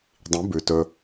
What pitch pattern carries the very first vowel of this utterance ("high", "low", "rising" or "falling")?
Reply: rising